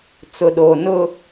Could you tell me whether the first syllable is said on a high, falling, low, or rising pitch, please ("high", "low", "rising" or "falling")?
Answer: low